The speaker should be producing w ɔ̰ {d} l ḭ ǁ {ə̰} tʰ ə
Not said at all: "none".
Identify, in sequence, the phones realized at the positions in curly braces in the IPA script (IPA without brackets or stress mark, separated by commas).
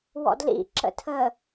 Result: d, ə̰